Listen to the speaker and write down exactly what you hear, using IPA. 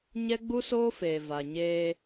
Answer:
ɲ ɛ˦ ɡ͡b u˦ s oː˦ f eː˨ v a˨ ɲ eː˦

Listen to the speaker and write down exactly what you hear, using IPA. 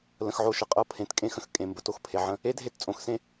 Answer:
l ə̃˨ x ʕ o˨ ʃ ə˨ qʼ ɤ˦˨ pʰ ẽ˨ t kʼ ẽ˦ x ə̃˨ x kʼ ẽ˨ m b ə˨ t o˦ x pʰ e˨ ʕ ə̃˦ | e˦ dʱ e˦ t t͡sʼ õ˨ x s ẽ˦

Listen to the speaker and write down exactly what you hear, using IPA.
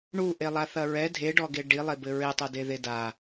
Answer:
ɳ u ʔ e lˠ a θ ɐ ɹ ɛ dʱ e ɖ ɔ ɡ e ɖ i lˠ e b ɘ ɹ e tˤ o d e ð e d a

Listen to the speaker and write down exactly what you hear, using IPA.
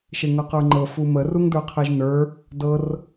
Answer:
ʃ e ŋ ɤ q ə˞ ŋ͡ǃ ɤ f u m ə r u ŋ d ə˞ qʰ e ʒ n ə˞ | d ɤ r

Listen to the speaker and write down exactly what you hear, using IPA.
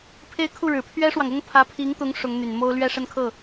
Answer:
pʰ e˥˧ ɪ̯ kʰ u˥˩ ɻ ɻ̩˨˩ pʰ ɥ ɛ˥ ʂ w ɑ˨ ŋ ʊ˥ ŋ pʰ ä˧˥ pʰ i˧˥ ŋ t̪ ʊ˧˥ ŋ ʂ ʊ˧˥ ŋ n̪ y˨˩ n m o˥ ʊ̯ l ɥ ɛ˥˧ ʂ ə˥˧ n kʰ ɤ˥˩

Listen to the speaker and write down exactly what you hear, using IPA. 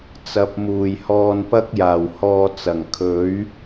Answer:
t͡s ɐ˨˥ p̚ m uː˨˩ j h ɔː˧ n p ɐ˥ k̚ j aː˨˩ w h ɔː˧ t͡s ɐ˨˩ ŋ kʰ ɵ˨˥ ɥ

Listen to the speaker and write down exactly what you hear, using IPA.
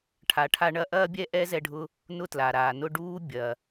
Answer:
ʈʰ a˩ ʈʰ a˧ ɳ ɐ˧ ʔ ɐː˥ bʲ ɛ˥ ʔ ɛ˥ z ɛ˧ ɖʱ ʊ˧ | n ʊ˥ t l a˩ ɾ aː˩ n ʊ˥ ɖ uː˥ bʲ ɐ˩

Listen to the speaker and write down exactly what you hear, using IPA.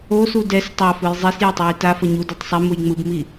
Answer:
o s u d ɛ s tˤ a f ɯ j zˤ i s j a tˤ j ɯ j t a f ʌ ɲ u d u tˤ sˤ i m u j ŋ͡m ɯ b m i

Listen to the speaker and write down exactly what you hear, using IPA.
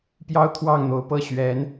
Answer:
p j ɑ˥ ʊ̯ t̪ʰ w ɑ˥˩ ŋ n̪ o˧˥ ʊ̯ p ɤ˥˩ ɕ ɥ ɛ˧˥ n

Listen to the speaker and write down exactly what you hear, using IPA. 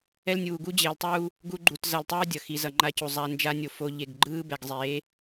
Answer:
ɛ˦ l nʲ uː˨ ɡ u˦ d͡ʑ eː˨ l tˤ uː˦ | ɡ u˦ ɡ͡ǃ u˨ t z ʌ˨ l tˤ ɯː˦ dʲ ʌ˨ x i˨ z ʌ˨ ŋ͡ǃ a˦ c u˨ zˤ a˦ n d͡ʒ a˦ nʲ o˨ f o˦ ʎ e˦˨ ɡ ɡ͡ǃ ɯː˦ b ɛ˨ ɡ zˤ eː˨˦

